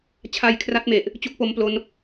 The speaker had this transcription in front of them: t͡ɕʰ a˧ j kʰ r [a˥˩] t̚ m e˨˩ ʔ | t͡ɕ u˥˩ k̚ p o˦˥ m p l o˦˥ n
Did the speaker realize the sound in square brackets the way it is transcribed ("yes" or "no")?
no